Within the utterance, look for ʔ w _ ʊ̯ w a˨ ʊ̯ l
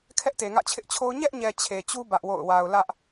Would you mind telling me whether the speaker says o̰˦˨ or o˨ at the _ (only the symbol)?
o̰˦˨